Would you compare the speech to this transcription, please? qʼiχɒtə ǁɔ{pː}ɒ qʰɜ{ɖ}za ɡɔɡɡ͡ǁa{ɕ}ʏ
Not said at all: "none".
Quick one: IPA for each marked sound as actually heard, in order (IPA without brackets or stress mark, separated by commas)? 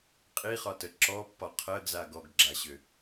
pː, ɡ, ɕ